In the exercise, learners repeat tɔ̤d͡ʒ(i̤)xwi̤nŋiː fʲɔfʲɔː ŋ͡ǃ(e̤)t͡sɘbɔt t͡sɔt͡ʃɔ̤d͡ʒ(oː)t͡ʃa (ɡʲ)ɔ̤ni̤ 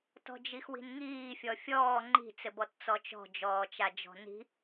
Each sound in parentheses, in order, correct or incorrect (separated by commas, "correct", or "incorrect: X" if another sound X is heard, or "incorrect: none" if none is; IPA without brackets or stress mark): incorrect: i, incorrect: i̤, incorrect: ɔː, incorrect: d͡ʒ